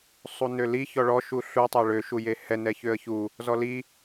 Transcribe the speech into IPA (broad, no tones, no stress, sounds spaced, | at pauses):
sˤ u n ø l i ç ɔ ɭ ɔ ʃ u ɬ u tˤ a ɭ ø ʃ u j e h ɛ n ɛ ç ø ə̯ ç u | z ɔ l i